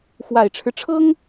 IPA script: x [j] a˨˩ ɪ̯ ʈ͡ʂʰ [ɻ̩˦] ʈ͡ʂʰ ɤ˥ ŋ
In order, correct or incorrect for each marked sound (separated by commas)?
incorrect, correct